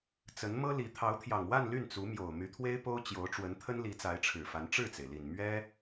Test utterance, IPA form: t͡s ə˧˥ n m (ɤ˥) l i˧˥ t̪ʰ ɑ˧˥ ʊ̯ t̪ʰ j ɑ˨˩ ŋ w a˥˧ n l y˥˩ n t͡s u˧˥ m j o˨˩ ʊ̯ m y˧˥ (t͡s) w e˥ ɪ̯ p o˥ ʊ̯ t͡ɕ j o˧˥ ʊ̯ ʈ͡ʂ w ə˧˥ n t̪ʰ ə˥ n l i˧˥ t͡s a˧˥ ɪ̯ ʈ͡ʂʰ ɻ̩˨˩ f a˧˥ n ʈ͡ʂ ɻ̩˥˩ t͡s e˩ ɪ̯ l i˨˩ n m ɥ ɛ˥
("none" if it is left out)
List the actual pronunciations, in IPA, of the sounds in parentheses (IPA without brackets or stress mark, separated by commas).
ɤ˥, t̪ʰ